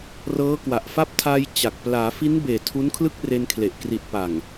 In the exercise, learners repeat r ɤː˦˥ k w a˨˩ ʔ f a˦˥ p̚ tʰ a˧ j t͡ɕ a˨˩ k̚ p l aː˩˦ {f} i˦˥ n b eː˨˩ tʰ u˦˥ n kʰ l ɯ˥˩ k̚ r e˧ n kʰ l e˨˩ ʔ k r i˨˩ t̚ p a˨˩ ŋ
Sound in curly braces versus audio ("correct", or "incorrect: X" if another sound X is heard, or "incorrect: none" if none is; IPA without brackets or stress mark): correct